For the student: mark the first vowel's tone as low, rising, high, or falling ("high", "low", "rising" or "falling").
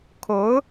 rising